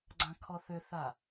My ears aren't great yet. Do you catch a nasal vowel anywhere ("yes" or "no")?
yes